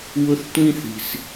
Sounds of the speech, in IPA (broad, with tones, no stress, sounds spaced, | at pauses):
w ʊ˥ θ tʷ ĩ˥ θ i̤˧ s